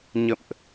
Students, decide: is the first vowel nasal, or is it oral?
oral